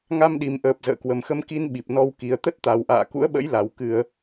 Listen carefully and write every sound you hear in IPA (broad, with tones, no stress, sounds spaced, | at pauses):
ŋ a˧ m ɗ i˨˩ m ʔ əː˨˩ p̚ z ə̰ː˧˨ k w ə˨˩ m x ə˧ m k i˧ n ɓ i˨˩ p̚ n ɔ˧ w k i˨˩ ə̯ t̪ ə˦˥ t̚ t̪ a˨˩ w ʔ a̰ː˧˨ k ṵ˧˥ ə̯ ɓ ə̰˧˥ j l a˨˩ w k ɨ˧˩˨ ə̯